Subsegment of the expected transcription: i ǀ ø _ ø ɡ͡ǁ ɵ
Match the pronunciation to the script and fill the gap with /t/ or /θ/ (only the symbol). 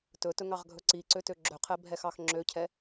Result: t